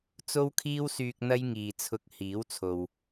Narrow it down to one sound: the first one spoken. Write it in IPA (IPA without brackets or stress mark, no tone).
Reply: t͡s